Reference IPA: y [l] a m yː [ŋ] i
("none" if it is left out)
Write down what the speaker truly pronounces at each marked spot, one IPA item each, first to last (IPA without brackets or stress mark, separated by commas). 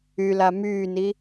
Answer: l, n